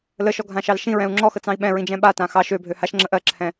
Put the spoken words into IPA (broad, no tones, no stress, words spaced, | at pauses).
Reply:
ləʃɔɡʱãʃɑl ʃĩɹɛ̃u̯ ŋ͡ǁɔxət͡sɑ̃i̯ ɓɛ̃ɹĩd͡ʒɛ̃ ɓatã xɑʃ øbʱø haʃŋ͡ǁə ʔɜǁʰɛ̃